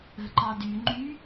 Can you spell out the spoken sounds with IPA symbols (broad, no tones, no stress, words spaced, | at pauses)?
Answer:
ə̤ ǃɑdy ŋ͡ǃy